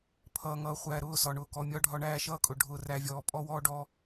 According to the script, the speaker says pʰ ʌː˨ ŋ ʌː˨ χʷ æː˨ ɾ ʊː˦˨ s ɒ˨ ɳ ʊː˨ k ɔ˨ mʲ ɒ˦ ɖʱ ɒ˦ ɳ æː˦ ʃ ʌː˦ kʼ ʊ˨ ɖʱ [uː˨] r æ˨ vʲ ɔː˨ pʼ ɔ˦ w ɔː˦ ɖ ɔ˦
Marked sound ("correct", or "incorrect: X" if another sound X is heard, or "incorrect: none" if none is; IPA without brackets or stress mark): incorrect: ʊː˨